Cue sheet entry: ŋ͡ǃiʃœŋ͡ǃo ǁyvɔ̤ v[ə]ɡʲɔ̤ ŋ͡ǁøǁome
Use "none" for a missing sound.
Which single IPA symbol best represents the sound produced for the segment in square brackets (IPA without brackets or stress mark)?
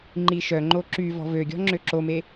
ø